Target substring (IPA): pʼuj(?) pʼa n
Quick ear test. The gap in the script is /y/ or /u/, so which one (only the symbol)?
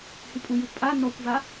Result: u